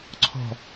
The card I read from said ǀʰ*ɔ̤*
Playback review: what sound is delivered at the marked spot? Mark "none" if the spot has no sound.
ɔ̤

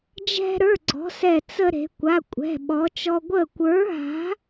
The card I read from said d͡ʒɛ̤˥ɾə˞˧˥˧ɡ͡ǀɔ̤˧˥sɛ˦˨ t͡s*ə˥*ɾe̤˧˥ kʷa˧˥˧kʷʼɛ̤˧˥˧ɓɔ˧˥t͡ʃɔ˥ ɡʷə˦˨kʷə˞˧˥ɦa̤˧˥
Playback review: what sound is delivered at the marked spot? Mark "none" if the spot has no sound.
ə˥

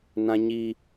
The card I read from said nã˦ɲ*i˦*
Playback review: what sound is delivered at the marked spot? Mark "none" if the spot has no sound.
i˦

